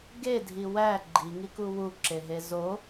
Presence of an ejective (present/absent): absent